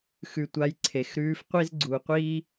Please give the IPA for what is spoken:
xʉ˧tʷa˧˥jǀʰe˩˧xɾʉː˧˥f qʷi˥zɡ͡ǀu˩˧qʷiː˥

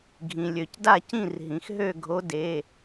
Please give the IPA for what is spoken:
ɡʱĩ˩lʲø˩cda˥˩cĩ˥˩r ɦĩ˩xɦø˥˩ ɡʱo˨˥de˩˧˩

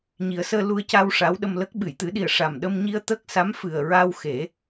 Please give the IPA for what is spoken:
ɲi˨˩˦ə̯səː˧ lu˧ə̯ca˧w ʂa˧˥wɗə˧mlə˦˥k̚ ɓɨ˨˩˨jt̪ɨ˨˩˦ɗi˨˩ə̯ ʂa˨˩mɗə˧mɲi˧ə̯ t̪ə˦˥k̚sa˧˥mfɨ˨˩ə̯ɹa˧w xe˨˩˦

